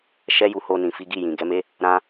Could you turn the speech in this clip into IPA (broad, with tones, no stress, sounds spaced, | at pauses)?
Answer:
ʃ ɛ˦ j u˧ h o˧ n ĩ˨ f i˨˦ ɡ i˦˨ j ĩ˨ ɡ ɛ˨˦ m e˦ | ɾ ã˦